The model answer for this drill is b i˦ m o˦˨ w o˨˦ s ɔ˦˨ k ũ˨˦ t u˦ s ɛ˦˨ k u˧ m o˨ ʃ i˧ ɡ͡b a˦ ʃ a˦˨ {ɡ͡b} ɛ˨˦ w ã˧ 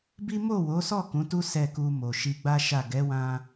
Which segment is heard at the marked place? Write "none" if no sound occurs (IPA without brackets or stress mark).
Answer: ɡ